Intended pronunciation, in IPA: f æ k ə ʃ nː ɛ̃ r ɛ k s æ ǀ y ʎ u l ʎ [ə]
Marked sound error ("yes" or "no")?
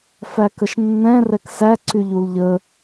no